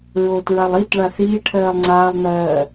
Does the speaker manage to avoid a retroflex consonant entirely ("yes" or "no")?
no